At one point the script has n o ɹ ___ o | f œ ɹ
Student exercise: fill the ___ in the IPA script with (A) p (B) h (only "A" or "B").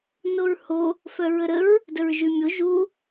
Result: B